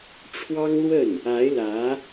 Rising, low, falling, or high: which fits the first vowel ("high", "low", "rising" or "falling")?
high